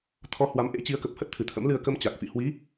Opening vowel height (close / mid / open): mid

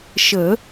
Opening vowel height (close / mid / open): mid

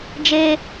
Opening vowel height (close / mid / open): mid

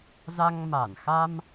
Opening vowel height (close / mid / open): open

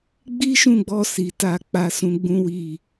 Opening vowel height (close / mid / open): close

